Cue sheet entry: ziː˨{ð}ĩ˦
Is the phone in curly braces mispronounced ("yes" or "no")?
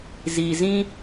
yes